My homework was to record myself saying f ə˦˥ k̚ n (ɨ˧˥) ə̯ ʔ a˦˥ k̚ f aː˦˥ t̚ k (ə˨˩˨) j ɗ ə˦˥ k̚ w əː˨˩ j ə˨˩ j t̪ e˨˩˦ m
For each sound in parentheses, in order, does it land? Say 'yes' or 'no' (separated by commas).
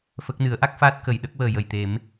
no, yes